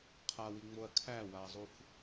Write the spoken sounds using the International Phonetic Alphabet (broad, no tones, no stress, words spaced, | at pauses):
qʰawiŋ͡moɐ̯ kʰæwazˤuf